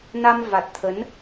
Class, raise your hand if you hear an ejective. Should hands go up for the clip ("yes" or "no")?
no